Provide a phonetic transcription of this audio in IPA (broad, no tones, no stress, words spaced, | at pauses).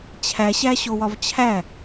t͡ɕʰæɕæɕowɒv t͡ɕʰæ